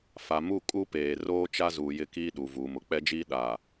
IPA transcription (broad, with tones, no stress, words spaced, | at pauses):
fa˨mu˦˨ kʼu˦peː˨ roː˦t͡ʃa˦zuː˨jɪ˦˨ kiː˦ɗu˨ vuː˨mʊ˨ k͡pɛ˦d͡ʒiː˦ ɗa˨